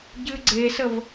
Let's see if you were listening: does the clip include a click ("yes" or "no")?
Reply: yes